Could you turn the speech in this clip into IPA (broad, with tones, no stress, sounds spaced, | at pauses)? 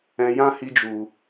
ɛ̃˧ j ã˦ h i˧ d͡ʒ u˨